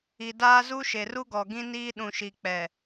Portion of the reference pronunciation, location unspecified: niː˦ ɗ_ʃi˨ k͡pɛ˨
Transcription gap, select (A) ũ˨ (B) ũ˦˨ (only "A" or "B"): A